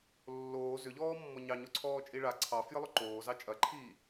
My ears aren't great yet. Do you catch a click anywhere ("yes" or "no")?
yes